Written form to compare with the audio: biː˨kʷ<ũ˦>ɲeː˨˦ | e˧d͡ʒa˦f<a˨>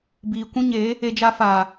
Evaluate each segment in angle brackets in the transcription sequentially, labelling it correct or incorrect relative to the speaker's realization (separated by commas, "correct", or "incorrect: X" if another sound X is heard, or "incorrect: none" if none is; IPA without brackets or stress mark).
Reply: correct, incorrect: aː˨